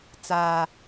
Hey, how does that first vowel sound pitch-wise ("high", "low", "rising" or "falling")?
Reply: high